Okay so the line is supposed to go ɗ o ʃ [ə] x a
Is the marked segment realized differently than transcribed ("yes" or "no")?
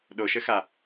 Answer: no